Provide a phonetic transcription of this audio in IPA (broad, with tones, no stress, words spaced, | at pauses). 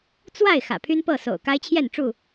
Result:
t͡swa˥˨ɪ̯ xä̰˨˩pʰy˦npɤ˥˨ so̰˨˩ʊ̯ka˦ɪ̯t͡ɕʰjɛ˥˨nʈ͡ʂu˥˨